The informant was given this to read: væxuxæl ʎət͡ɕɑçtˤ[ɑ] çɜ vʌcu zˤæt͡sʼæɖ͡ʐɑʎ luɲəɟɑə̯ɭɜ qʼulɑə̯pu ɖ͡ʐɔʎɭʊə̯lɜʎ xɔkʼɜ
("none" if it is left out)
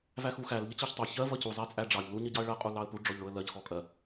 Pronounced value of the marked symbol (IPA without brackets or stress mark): ɑ